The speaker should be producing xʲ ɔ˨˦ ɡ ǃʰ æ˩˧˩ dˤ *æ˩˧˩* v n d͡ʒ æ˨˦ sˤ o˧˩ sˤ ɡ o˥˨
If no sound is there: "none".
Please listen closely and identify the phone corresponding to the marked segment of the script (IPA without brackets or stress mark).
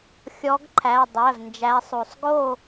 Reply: æ˩˧˩